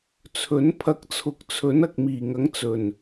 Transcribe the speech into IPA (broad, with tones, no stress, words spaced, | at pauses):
t͡sʰɵ˨˥n pʰɐ˧k̚t͡sʰʊ˨˥k̚ t͡sʰɵ˨˥n ɐ˨k̚miː˨˩ŋɐ˨˥ŋ t͡sɵ˨˩n